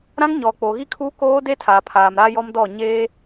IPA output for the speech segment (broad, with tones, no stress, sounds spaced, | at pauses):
ɾ ã˦ ŋ ɲ ɔ˨ k͡p o˨ ɣ i˦ kʰ u˦ k oː˦ d e˦ tʰ aː˨ pʰ aː˨ m ɾ a˦ j ɔ˦ m d ɔ˦˨ ɲ eː˦